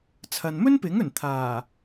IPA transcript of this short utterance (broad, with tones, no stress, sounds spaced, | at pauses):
t͡sʰ ɐ˨ n m ɵ˥ n p ɪ˨˥ ŋ ɵ˨˩ n t̪ʰ aː˨˩